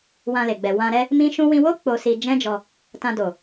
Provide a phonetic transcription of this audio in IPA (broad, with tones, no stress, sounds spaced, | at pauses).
w ã˧ l e˨ ɡ͡b ɛ˨ w ã˧ ɾ ɛ˦ | m ĩ˦ ʃ ũ˦ w ĩ˧ w o˦ k͡p o˧ s i˧ d͡ʒ ɛ̃˦ d͡ʒ ɔ˧ | t ã˧ d o˨